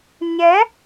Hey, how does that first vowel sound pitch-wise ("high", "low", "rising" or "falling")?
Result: rising